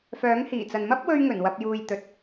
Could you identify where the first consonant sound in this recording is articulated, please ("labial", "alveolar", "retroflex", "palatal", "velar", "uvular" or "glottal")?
labial